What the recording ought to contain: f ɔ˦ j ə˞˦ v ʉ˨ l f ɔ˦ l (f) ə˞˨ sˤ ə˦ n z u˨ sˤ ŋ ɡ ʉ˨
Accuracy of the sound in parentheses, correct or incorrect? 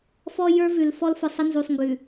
correct